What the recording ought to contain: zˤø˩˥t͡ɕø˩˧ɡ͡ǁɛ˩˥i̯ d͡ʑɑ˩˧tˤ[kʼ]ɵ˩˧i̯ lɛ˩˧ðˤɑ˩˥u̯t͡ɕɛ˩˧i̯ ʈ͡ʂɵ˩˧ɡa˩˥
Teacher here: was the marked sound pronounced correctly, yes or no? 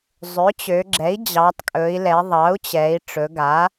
yes